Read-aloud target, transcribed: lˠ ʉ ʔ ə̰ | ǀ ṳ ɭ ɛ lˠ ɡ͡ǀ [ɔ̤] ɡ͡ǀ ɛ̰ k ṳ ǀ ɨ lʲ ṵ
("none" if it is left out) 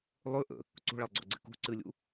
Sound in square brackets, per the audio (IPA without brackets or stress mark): ɔ̰